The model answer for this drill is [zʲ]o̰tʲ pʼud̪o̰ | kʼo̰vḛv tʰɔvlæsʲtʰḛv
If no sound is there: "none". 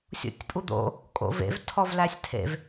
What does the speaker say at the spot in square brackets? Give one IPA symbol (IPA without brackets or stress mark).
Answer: sʲ